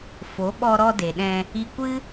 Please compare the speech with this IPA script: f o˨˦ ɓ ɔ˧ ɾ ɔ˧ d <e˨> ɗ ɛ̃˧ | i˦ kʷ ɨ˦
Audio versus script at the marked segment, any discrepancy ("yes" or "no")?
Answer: no